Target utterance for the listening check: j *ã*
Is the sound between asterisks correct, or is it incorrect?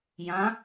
correct